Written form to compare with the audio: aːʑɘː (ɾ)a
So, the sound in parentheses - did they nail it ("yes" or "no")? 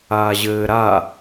yes